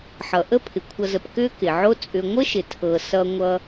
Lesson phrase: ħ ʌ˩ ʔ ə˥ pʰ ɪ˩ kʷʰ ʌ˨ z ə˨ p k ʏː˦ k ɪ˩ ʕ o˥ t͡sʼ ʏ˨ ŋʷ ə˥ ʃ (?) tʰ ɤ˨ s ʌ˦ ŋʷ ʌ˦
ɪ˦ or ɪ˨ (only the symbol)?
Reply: ɪ˨